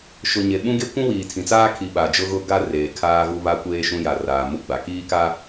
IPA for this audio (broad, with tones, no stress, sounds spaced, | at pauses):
ʃ ʊ˨ ɲ e˨ ɓ ũ˦ ɡ e˦ kʷ ũ˦ w iː˨ tʰ ĩ˨ t͡s aː˦ kʰ i˨ ɓ a˨ d͡ʒ ʊ˦ ɣ ʊ˦˨ ɡ a˦˨ r eː˨ kʰ aː˦ ɣ u˦ β a˦ kʷ eː˦ ʃ ũ˦ j a˨ r aː˨ m u˦ ɡ͡b a˨ k iː˦ k a˦